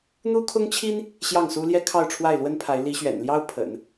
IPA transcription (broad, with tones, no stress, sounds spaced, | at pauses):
n̪ u˥ kʰ ʊ˥ ŋ t͡ɕʰ i˥ n | ɕ j ɑ˥˩ ŋ s u˥ l j ɛ˥ kʰ ɑ˥˧ ʊ̯ ʈ͡ʂʰ w a˥˩ ɪ̯ l w ə˥ n pʰ a˧˥ ɪ̯ l i˧˥ ɕ ɥ ɛ̰˨˩ n l j ɑ˥ ʊ̯ pʰ ə̰˨˩˦ n